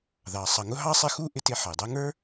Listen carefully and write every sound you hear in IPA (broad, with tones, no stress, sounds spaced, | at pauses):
ð ɑ˩ sˤ ʌ˨ ŋ ʊ˥ ɦ ɑ˥ sˤ ɪ˦ x u˥ ʔ ɪ˦ t ɪ˦ ħ ʌ˩ j dˤ ɛ˦ ŋ ə˞˥